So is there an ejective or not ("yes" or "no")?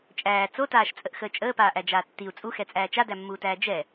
yes